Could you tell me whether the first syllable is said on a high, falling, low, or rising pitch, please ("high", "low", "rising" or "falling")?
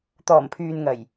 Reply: low